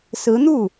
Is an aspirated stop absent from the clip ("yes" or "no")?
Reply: yes